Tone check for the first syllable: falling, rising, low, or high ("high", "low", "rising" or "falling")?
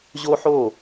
high